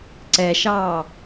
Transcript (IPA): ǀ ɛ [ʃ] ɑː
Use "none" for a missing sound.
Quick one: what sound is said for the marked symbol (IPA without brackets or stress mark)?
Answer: ʃ